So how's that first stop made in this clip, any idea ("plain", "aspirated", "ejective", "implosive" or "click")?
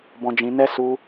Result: plain